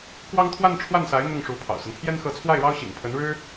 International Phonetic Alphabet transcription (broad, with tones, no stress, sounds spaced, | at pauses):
k w ɑ˥ ŋ t̪ʰ w a˥˧ n ʈ͡ʂʰ w a˥˩ n s a˧˥ ɪ̯ n̪ ʊ˥˩ ŋ ʂ u˧˥ pʰ ɑ̰˨˩ ʊ̯ s ə˦ n pʰ j ɛ˥ n x ɤ˧˥ t͡sʰ w a˥˩ ɪ̯ ɻ ɑ˥ ʊ̯ ɕ ḭ˨˩ ŋ pʰ ə˧˥ n ɻ ɻ̩˥